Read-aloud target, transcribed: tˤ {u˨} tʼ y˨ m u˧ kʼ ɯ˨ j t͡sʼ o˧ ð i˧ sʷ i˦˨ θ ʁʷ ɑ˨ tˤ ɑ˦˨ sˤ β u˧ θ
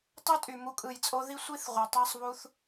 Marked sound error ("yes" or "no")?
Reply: yes